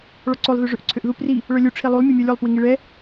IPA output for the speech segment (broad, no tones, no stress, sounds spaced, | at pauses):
ɭ ɔ ǀ o lˠ ð ø ʐ ø ʔ ǀʰ ø ʔ ð u p r i | ɭ œ lʲ u ʈ͡ʂʰ i lˠ u lˠ mʲ ɛ mʲ œ lʲ o lˠ p w i ŋ i ɭ ɛ